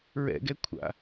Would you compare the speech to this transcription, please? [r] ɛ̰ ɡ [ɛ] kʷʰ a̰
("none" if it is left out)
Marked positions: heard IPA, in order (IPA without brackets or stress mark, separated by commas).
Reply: ɹ, ɛ